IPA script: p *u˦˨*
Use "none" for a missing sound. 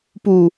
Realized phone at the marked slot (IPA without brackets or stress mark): u˨